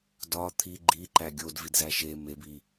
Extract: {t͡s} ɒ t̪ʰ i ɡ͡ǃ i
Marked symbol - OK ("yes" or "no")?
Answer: no